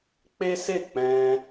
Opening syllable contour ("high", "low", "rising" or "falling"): high